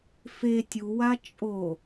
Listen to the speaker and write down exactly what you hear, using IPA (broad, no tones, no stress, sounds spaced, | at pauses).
f e tʲ u w a t͡ʃʼ o